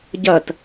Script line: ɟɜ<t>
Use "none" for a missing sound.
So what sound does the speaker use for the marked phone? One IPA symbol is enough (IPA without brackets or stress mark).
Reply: t